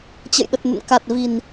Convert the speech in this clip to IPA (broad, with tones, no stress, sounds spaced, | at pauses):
t͡ɕ ə̰˧˨ j ɗ ə˨˩ t̚ n ə̰˧˨ n k a˨˩ t̚ v i˨˩ n